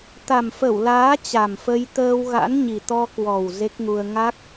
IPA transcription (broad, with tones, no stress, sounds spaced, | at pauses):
t̪ a˨˩ m f ə˧˩ w l aː˨˦ t͡ɕ a˨˩ m f ə˧ j t̪ əː˧ w ɣ a̰˧˥ n ɲ i˨˩ t̪ ɔ˧ k w ɔ˨˩ w z e˦˥ k̚ ŋ u˧ ə̯ ŋ a˦˥ k̚